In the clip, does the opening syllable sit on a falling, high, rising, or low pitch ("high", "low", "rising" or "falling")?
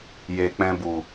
low